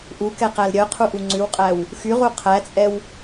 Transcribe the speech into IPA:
ʔ u k ɛ q æ l ɾʲ œ qʰ u ʔ u ŋ͡ǀ ʉ w qʼ æ w | x y ʁ u qʰ æ t͡sʼ ɛ w

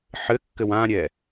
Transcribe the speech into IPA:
ħ ɘ kː ɘ w ã ɾʲ ɛ

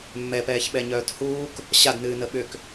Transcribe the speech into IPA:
mː ɛ p ɛː ç ɓ ɛ ɲ œː t h uː k | ɕ a d n ɨː n ə ɓ ʏ k

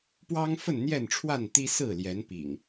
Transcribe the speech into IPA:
p w ɑ˦ ŋ f ə˥˨ n n̪ j ɛ˥˨ n ʈ͡ʂʰ w a˥˨ n t̪ i˦ s ɹ̩˥˨ l j ɛ˨˦ n p ḭ˨˩ ŋ

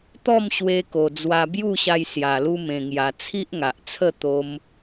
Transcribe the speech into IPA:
t̪ ɔ˥˧ m ɕ w e˧ k o˨˩ d͡z w a˧ b j u˥˧ ɕ a˧ j s j a˨˩ l u˧ m ẽ˨˩ ŋ j a˨˩ t͡sʰ i˦ ʔ ŋ a˨ ʔ t͡sʰ ə˥˧ t̪ o˧ m

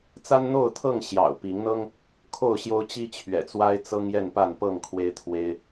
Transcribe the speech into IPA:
t͡s a˦ n n̪ o˥˨ ʊ̯ t̪ʰ ɤ˥˨ ŋ ɕ j ɑ̰˨˩ ʊ̯ p i˨˦ ŋ n̪ ɤ˦ ŋ | kʰ o˥˨ ʊ̯ ɕ j o˦ ʊ̯ t͡ɕ i˦ t͡ɕʰ ɥ ɛ̰˨˩ t͡s w a˦ ɪ̯ t͡s ɤ˦ ŋ j ɛ˥˨ n p a˥˨ n p ɤ˥˨ ŋ kʰ w e˦ ɪ̯ t̪ʰ w e˦ ɪ̯

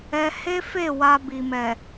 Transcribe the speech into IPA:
ɛ˦ h e˦ f e˦˨ w a˧ b i˨ m ɛ˨

